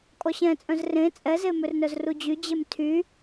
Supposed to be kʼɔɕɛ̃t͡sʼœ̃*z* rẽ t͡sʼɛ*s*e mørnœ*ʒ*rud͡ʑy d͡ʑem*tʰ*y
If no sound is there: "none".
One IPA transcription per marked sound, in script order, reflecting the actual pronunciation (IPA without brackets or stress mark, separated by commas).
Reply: z, z, z, tʰ